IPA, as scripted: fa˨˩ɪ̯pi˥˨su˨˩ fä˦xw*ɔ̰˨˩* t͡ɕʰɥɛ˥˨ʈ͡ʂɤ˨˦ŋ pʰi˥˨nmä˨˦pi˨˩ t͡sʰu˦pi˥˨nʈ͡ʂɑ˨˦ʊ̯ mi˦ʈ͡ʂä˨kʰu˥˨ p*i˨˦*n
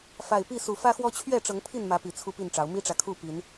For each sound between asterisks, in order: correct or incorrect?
incorrect: ɔ˦, correct

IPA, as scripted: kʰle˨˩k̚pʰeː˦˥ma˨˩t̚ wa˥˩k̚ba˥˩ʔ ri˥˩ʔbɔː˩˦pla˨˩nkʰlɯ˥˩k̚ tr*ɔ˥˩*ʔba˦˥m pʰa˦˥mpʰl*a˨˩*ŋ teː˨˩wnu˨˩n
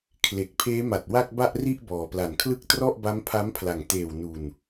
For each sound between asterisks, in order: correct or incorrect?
correct, correct

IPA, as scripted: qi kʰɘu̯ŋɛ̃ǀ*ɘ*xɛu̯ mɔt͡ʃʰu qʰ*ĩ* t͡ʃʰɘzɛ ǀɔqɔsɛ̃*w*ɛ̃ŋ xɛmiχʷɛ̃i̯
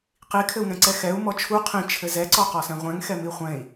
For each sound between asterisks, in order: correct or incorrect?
incorrect: ɛ, correct, incorrect: ʁʷ

